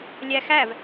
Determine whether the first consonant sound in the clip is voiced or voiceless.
voiced